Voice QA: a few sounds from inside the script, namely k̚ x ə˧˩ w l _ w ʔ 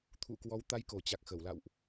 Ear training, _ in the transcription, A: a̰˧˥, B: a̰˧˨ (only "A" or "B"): B